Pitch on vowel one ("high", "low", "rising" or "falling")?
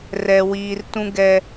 high